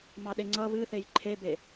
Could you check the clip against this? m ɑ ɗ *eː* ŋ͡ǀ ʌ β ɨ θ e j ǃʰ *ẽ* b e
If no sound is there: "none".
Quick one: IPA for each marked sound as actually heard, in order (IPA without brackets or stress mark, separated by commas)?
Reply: e, e